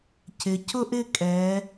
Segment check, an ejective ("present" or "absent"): present